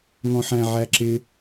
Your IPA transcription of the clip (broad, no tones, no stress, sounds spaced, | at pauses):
ŋ ɔ̃ ħ æ̃ ʕ æ ǁ ɪ